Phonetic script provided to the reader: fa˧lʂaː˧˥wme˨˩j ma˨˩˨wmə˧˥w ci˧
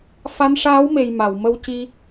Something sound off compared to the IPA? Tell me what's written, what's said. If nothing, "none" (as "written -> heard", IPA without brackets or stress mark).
l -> n